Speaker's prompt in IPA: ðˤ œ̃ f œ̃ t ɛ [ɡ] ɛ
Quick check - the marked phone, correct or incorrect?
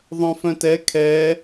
incorrect